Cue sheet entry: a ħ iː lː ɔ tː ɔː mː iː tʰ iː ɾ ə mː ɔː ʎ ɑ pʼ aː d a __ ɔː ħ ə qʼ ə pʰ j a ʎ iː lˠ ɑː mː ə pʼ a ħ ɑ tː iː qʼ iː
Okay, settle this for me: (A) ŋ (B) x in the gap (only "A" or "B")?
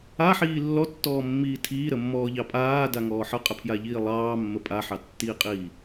A